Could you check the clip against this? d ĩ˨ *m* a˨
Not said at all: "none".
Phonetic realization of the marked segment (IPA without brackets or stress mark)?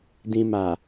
m